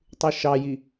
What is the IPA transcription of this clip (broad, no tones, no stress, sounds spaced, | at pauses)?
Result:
tˤ ʉ ʃ ɑ j i